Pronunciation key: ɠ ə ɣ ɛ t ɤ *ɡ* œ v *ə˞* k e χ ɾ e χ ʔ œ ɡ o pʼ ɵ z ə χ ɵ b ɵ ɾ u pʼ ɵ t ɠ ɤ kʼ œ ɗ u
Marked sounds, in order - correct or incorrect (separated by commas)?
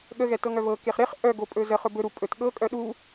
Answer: incorrect, incorrect